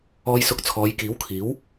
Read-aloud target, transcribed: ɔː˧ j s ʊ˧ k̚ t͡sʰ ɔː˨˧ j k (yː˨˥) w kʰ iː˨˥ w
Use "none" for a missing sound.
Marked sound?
iː˨˥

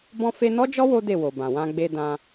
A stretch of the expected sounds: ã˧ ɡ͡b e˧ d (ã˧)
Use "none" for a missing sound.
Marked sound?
ã˧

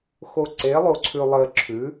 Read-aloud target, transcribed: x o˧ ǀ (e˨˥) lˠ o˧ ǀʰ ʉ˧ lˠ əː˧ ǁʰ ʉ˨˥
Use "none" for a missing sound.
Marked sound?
e˨˥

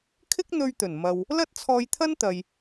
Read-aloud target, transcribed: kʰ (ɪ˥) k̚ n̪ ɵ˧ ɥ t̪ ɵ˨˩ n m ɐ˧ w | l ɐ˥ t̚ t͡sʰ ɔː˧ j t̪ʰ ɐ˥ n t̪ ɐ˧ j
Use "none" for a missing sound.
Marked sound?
ɪ˥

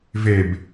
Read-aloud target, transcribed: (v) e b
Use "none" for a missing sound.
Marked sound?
v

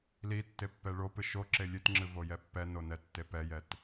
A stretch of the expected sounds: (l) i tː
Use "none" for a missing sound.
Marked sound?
l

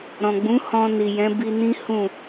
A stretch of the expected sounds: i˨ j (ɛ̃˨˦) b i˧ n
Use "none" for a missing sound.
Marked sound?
ɛ̃˨˦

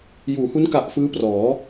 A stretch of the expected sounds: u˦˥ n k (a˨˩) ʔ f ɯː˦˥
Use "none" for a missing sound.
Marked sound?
a˨˩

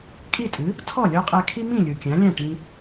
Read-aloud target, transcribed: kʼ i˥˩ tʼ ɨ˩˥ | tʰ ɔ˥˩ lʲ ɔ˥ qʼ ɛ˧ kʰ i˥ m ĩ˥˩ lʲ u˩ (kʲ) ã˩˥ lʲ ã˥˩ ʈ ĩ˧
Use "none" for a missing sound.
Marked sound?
kʲ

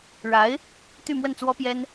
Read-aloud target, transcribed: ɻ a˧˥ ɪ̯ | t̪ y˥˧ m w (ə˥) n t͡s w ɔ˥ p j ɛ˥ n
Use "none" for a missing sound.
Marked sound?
ə˥˩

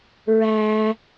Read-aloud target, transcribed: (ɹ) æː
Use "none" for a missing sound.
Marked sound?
ɹ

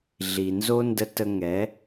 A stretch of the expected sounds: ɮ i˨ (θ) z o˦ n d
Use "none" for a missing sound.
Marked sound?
n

